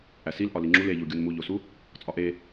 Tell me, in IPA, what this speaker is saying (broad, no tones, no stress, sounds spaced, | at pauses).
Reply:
ʔ æ s i l ʔ ɒ l i ŋ͡ǁ u l e ʎ u ɡʲ u n m u ʎ o s u | t͡sʼ ɒ ʔ e